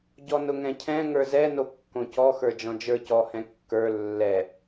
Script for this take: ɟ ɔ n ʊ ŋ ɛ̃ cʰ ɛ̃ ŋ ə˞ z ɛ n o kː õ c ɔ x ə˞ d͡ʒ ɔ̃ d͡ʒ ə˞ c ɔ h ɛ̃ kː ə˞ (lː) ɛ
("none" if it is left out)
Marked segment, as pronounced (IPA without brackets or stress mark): lː